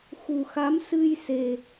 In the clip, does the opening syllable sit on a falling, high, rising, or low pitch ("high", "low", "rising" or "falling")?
low